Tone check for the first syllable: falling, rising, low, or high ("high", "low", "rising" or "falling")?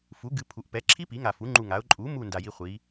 rising